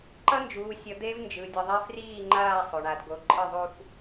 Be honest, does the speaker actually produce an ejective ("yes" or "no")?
yes